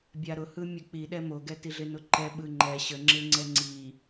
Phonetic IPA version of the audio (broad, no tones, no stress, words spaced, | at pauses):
bʲaɾʊhɯ mʲək͡piɗɛ moɡɛtiɮɪ nʊǃɛ ɓɯŋ͡ǃɛ ɕəŋ͡ǁɪŋ͡ǀɛ ŋ͡ǀi